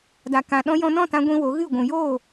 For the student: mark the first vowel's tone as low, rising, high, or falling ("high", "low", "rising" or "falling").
low